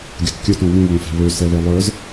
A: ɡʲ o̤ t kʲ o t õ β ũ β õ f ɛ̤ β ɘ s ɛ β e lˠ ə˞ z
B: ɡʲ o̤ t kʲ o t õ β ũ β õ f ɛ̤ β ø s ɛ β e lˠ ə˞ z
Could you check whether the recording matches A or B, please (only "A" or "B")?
B